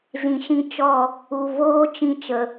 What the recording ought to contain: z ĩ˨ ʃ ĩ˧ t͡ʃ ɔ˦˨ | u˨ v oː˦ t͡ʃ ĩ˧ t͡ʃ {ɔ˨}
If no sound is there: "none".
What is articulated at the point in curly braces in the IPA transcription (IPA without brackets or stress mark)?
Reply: ə˨